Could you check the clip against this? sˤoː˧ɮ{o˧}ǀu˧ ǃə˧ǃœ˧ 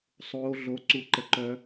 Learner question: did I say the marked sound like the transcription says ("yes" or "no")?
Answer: yes